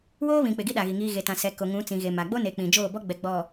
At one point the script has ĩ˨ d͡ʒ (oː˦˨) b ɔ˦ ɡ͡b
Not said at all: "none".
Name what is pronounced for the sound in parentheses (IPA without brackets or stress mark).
oː˦˨